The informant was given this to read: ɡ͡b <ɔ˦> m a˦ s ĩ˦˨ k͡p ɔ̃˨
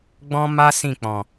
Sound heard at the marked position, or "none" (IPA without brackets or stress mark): ɔ̃˦